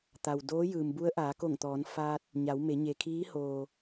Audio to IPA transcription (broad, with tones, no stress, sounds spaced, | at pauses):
t̪ a˩ w d oː˧˥ j ɯː˩ m b u˧˥ ə̯ ʔ aː˩˧ k o˧˩ ŋ t̪ ɔː˩˧ n f aː˧ t̚ | ɲ a˩˧ w m e˩˧ ɲ e˩ kʰ iː˧˥ h oː˩